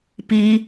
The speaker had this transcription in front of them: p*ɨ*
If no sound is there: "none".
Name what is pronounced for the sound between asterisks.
i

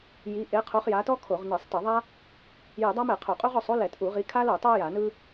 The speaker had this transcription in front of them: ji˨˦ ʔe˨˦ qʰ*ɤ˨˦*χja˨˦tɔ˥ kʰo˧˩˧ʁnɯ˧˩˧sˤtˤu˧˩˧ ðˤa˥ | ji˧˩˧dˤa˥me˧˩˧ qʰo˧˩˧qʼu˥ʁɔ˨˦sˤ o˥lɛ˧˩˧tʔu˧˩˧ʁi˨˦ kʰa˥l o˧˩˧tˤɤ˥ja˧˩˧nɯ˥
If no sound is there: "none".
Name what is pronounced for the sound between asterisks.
o˨˦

